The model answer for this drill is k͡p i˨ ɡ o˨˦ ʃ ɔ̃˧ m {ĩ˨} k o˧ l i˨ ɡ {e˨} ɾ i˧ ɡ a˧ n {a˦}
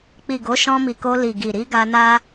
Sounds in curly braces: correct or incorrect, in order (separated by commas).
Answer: incorrect, incorrect, correct